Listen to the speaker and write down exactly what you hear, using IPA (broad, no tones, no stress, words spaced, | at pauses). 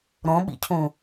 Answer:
ɾõɓḭcʰũ